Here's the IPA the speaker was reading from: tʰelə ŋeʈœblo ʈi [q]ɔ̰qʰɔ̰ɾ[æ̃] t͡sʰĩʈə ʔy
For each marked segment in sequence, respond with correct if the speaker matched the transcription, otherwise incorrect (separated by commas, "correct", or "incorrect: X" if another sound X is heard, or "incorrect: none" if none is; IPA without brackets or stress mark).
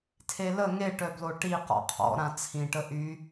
correct, incorrect: ã